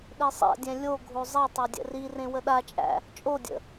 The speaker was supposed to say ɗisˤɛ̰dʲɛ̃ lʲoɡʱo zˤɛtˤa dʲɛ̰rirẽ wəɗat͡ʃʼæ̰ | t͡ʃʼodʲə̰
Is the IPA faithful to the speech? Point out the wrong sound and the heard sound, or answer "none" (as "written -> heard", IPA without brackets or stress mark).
none